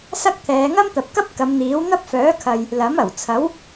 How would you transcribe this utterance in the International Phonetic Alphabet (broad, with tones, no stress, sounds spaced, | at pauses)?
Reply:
s ɐ˥ k̚ t̪ʰ ɛː˨˧ ŋ ɐ˥ m t̪ ɐ˨ p̚ k ɐ˥ p̚ k ɐ˨˧ m n̪ iː˨˥ w n̪ ɐ˥ p̚ f œː˨˥ kʰ ɐ˨ j | l ɐ˨˥ m ɐ˨˩ w t͡sʰ ɐ˨˥ w